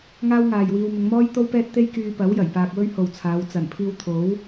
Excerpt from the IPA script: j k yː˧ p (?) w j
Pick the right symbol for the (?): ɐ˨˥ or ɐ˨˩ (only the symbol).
ɐ˨˥